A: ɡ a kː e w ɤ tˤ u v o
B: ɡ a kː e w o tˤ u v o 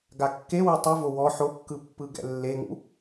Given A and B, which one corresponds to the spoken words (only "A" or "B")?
A